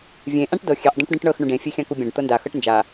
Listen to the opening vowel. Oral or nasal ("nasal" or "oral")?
nasal